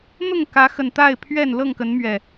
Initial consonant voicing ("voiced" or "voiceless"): voiced